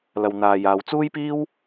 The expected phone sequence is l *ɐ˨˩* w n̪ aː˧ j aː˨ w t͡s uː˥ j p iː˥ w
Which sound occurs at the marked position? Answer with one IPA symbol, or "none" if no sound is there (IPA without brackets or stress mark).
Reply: ɐ˧